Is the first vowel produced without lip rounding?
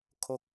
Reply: no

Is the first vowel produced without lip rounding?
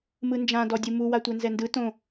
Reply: yes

